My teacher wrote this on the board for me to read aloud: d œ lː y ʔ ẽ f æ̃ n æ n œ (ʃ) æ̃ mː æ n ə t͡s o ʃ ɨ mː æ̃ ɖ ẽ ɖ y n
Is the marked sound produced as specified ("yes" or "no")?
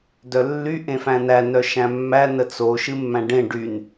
yes